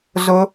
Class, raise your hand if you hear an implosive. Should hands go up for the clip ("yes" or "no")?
no